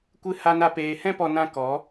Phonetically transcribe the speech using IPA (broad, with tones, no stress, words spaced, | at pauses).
kʷɨ˦ ha˦na˦peː˧ hɛ̃˦pɔ˧ nã˦ kɔ˨˦